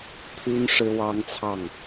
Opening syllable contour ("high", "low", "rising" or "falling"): high